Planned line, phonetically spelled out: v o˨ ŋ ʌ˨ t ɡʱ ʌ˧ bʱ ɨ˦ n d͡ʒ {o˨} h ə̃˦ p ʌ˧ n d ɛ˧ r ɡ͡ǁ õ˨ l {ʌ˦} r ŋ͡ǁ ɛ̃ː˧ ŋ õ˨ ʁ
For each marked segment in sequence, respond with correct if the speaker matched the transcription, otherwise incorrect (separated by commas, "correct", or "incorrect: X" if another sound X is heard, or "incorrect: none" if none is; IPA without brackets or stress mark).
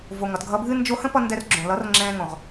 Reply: incorrect: o˧, incorrect: ʌ˨˦